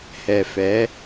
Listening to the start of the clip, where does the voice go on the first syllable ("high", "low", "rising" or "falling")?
low